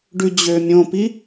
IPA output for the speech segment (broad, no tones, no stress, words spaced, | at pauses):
ɖʉd͡ʑø mʲõpi